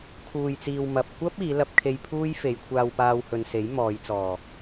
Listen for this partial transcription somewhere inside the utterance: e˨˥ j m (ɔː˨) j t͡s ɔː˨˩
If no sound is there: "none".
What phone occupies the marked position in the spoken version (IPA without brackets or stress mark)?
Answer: ɔː˨˧